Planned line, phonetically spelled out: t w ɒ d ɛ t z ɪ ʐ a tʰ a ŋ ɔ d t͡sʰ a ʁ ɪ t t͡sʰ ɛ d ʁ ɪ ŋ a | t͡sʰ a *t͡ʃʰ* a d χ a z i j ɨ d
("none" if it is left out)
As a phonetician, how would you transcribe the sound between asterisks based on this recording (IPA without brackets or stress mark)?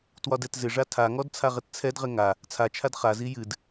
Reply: t͡ʃʰ